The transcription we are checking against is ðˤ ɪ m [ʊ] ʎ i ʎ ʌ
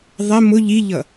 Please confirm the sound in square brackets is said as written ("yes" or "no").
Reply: yes